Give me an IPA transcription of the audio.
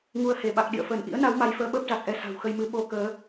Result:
ŋ u˧ ə̯ h e˧˩ ɓ a˨˩ k̚ ɗ ḭ˧˨ ə̯ f əː˧˩ n ʔ ḭ˧˥ ə̯ n a˨˦ w m a˨˦ j f əː˧ ɓ əː˦˥ p̚ z a˨˩ k̚ ʔ ɛ˨˦ s a̤˨˩ w x ə˧ j m ɨ˨˦ ɓ o˧ k əː˨˦

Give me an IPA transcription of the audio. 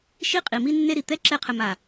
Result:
ʃ i˦ qʼ i˨ m i˦ nː e˦ ɾ i˨ t̪ ɛ˦ ǁ ɛ˦˨ qʰ ɘ˨ m a˨

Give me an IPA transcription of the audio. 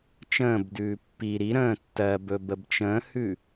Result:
t͡ʃ ə̃ː b d ʉː pː i ɾ i ɾ ə̃ː tː ɜ b ɵ b ə b t͡ʃ ə̃ː h ʉ

